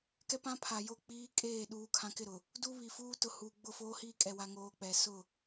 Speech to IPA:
k ɛ˦ p ã˦ pʰ a˨ j o˦˨ k͡p iː˦ kʼ eː˦˨ ɗ uː˦ kʰ ã˦ k ɪ˦˨ ɾ ʊ˨ | d u˦ β i˨ f uː˦ t ʊ˨ h uː˨ ɡ͡b ʊ˦˨ f oː˦ h iː˦ kʼ ɛ˦ w a˦ ŋ oː˦ k͡p ɛ˨ s ʊ˦˨

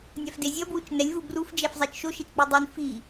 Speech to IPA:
nʲ a f d e zʲ ʌ b w u t͡ʃ n ɛ lʲ v u b r u f d͡ʒ ɛ f zˤ e t͡ʃ ʃ o ʃ e t͡ʃ k͡p i dˤ i n f i

